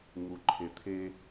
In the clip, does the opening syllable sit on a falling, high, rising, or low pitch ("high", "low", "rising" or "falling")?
low